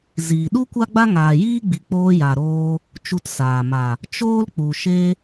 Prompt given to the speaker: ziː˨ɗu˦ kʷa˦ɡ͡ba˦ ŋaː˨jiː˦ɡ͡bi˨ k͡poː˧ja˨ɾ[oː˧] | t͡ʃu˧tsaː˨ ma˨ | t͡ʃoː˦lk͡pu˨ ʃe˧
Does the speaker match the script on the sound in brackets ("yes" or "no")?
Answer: yes